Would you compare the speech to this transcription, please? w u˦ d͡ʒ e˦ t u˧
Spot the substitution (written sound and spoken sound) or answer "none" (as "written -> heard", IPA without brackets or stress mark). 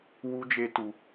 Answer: none